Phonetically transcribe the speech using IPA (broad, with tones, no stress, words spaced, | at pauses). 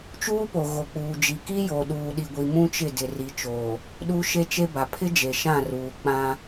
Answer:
t͡ʃuː˦po˨ ɣo˨k͡puː˨d͡ʒi˨ ki˦jo˨ ɗuː˨ɗi˨ɡʷi˨ mũ˦t͡ʃɪ˦˨dɪ˨ ri˨t͡ʃoː˨ | ɗu˦ ʃe˦t͡ʃe˦ba˨ pʰɪ˦ d͡ʒe˨ʃã˦˨ruː˨ k͡pã˦